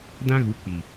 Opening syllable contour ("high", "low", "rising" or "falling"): high